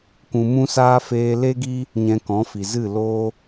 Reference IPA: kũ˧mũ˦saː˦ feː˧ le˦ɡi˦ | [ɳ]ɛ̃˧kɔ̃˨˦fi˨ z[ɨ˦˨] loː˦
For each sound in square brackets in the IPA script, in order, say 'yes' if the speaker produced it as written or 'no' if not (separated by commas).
no, yes